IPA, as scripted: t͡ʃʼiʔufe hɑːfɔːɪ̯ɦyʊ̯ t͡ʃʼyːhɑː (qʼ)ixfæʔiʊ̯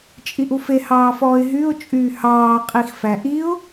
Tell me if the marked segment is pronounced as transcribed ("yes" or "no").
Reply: yes